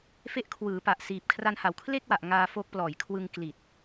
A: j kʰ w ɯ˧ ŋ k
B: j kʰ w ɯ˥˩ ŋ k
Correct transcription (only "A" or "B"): A